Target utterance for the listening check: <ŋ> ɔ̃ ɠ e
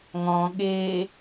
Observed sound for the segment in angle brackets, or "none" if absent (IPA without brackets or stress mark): ŋ